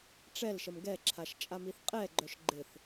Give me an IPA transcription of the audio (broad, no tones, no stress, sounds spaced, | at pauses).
ʈ͡ʂ ɛ l ʃ ə m ɡ ɛ ǁʰ a ʃ t͡ʃʼ a m i θ qʼ ɛ ɡ͡ǃ œ ʃ ɡ͡ǃ ɪ θ